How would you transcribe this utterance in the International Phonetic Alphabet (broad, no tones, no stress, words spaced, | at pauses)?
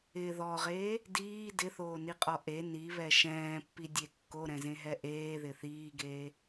ɪ ðɔʁeː | diː dɪθoːniqʼɔ ʔe niβɛ ʃɛ̃ːpːidʲe kːoɾɛ̃zẽɦɛ ʔeːðɪ θiːɡeː